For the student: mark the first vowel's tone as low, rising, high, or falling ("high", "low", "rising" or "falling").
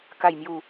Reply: low